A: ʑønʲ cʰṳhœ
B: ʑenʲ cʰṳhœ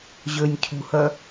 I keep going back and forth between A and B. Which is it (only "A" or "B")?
A